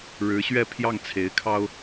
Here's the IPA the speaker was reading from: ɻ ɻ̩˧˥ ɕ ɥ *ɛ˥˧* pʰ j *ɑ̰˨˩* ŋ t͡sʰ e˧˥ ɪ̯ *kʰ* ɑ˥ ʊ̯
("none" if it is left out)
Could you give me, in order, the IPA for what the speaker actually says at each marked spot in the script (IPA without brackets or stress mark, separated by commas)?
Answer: ɛ˥˧, ɑ˥˩, kʰ